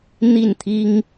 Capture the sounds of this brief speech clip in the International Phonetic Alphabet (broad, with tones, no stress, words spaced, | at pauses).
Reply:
n̪i˥˨nt̪ʰi˦ŋ